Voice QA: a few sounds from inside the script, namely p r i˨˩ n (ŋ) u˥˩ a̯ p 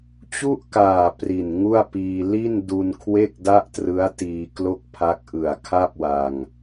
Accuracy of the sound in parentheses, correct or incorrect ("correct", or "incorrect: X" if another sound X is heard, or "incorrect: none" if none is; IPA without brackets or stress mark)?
correct